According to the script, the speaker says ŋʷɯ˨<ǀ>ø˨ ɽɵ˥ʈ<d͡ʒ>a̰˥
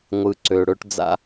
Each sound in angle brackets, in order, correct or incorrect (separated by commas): correct, incorrect